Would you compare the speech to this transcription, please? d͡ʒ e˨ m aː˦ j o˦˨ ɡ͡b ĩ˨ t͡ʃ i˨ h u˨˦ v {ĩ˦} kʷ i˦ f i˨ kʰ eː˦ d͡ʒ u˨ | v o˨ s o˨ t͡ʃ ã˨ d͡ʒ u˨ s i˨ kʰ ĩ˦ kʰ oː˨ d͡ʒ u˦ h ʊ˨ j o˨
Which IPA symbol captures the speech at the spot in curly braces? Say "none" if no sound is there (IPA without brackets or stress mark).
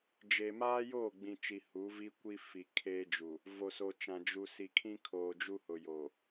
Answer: i˦